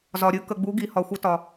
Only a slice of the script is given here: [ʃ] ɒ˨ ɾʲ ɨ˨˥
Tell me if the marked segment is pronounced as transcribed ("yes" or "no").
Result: no